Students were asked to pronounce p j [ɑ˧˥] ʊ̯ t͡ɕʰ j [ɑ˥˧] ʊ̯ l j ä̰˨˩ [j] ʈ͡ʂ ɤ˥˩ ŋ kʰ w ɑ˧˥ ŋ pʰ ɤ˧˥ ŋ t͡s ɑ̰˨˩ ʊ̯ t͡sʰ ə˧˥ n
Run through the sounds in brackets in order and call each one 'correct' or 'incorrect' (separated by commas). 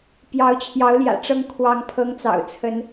correct, incorrect, incorrect